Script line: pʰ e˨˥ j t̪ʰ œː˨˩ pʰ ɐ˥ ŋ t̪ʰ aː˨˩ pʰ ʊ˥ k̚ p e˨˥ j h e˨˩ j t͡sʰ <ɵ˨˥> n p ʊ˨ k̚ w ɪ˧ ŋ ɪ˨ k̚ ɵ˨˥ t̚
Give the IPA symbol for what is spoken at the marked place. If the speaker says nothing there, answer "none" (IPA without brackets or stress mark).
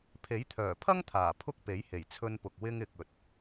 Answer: ɵ˧